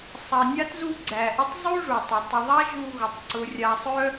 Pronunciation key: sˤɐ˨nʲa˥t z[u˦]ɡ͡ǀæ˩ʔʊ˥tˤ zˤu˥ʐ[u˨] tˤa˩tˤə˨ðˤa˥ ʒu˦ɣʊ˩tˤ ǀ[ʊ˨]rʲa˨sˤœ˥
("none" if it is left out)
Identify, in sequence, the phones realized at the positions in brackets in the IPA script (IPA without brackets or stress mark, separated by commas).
u˥, u˩, ʊ˨